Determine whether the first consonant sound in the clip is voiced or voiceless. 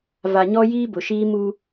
voiced